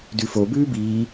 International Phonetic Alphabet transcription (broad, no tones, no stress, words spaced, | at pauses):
dʉfo bʉːbiː